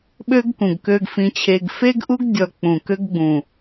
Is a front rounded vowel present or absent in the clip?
present